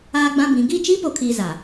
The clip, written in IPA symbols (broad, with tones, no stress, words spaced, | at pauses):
aː˦ɡ͡bã˦bĩ˨˦ ɡi˦˨ t͡ʃiː˦po˨kʰiː˨ za˨